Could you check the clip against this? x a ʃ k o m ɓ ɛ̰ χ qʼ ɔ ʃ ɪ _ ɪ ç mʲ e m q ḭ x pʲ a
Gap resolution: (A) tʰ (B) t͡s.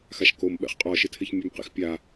A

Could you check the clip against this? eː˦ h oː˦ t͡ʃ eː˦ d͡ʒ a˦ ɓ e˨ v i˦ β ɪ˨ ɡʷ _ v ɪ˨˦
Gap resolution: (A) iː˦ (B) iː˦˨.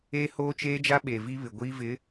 A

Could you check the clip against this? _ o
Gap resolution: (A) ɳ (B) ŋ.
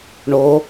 A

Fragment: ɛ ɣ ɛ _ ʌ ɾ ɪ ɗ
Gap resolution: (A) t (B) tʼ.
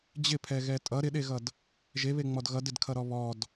B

